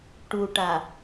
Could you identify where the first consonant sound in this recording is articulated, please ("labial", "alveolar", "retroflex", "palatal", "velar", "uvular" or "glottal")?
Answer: retroflex